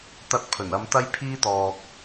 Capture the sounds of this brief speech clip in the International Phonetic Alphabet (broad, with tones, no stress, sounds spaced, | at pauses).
t̪ ɐ˧ t̚ pʰ ɵ˨˩ n ɐ˧ m t̪ ɐ˥ j pʰ iː˥ t̪ ɔː˨ k̚